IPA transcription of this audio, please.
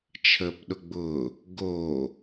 t͡ʃʰ əː p ɗ ʊ ɡ͡b ʊː | ɡ oː

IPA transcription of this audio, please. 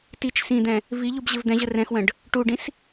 t i t͡ʃ s ĩ d̪ ɛ̃ | v i ʎ u b ʑ ɪ v d̪ ɛ̃ ʑ ə r ɛ̃ x w ə̃ ɖ | ʈ u ɖ ĩ s

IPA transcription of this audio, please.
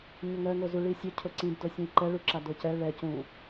ɲ ʊ ŋ ɜ ŋ o z u ɭ i sʲ ʊ cʰ ʊ ǀ ĩ b d o sʲ ũ i̯ ǃ ɛ ɭ u ǁ a d o c ɛ ɭ ɛ c ũ

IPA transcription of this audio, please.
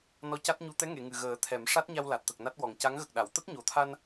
n ɔ˧ c a˦˥ t̚ ɲ u˧ t̪ ɛ˧˥ ŋ e˨˩˨ ŋ ɨ˨˩ ɣ əː˨˩˦ t̪ʰ ɛ˨˩˦ m ʂ a˦˥ t̚ ɲ a˧ w l a˨˩ t̚ t̪ ə˨˩ k̚ n a˦˥ t̚ w ɔ˨˩ ŋ c a˧˥ ŋ ɣ ə˨˩ k̚ ɗ a˨˩˨ w t̪ ə˦˥ k̚ ɲ o˨˩ t̪ʰ a˧ n

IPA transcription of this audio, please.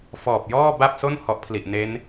f ɔː˨˩ p̚ j ɔː˥˩ b a˥˩ p̚ s o˥˩ n h ɔ˦˥ ʔ pʰ l i˨˩ ʔ n e˦˥ n

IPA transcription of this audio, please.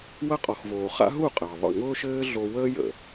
w ɐ˦ qʼ ɔ˨ x v oː˨ χ a̰˦ ɦ u˦˨ qʼ əː˨ ðˤ ə̰˦˨ ŋ ʊː˦ ʃ ɘː˦ ɮ o˧ w əː˦ j ə̰˨

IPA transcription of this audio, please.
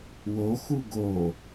w o x u ɡ o

